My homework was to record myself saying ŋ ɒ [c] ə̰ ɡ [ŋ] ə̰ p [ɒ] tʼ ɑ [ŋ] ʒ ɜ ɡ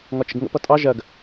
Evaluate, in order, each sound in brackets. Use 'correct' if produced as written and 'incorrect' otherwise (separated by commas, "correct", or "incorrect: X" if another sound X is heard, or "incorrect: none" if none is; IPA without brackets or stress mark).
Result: incorrect: t͡ʃ, correct, incorrect: ʌ, incorrect: none